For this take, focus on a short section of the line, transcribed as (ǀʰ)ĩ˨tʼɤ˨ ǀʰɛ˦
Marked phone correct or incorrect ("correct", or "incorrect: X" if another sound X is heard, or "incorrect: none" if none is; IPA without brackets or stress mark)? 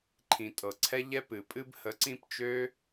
incorrect: ǃʰ